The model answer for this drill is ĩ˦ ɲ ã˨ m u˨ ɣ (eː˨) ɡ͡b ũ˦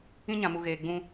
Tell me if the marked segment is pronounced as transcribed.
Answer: yes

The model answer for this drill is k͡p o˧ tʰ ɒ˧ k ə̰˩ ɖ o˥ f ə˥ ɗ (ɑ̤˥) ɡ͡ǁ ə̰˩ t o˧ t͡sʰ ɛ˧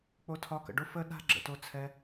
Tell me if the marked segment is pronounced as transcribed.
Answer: no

